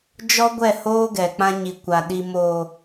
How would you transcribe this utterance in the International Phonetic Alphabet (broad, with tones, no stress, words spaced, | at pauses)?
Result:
d͡ʒɔ˦ɡʷɛ˦˨hoː˦ ɡɛ˨k͡pã˦ ɲi˨ kʷa˨ ɗi˨moː˨